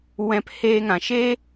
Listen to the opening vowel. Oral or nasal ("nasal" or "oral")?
nasal